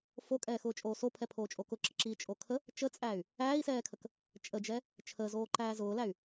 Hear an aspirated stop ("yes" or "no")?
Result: yes